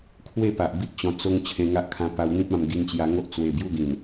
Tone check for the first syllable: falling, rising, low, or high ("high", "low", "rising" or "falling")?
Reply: falling